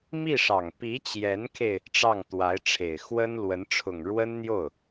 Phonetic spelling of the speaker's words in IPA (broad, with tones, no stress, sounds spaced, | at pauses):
m i˥˩ ʂ ɑ˨˩ ŋ p i˧˥ t͡ɕ j ɛ˧˥ n kʰ e˧ ɪ̯ | ʈ͡ʂ ɑ˥˩ ŋ t̪ w a˧˥ ɪ̯ ʈ͡ʂʰ e˨˩ ɪ̯ x w ə˥ n l w ə˧˥ n ʈ͡ʂʰ ʊ˨˩ ŋ ɻ w ə˥ n n̪ j o˥˩ ʊ̯